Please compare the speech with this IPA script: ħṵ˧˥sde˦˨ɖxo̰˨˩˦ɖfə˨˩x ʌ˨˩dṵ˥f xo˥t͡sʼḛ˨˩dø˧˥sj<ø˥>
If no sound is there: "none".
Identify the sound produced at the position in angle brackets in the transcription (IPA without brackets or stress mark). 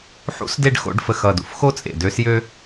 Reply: ø˥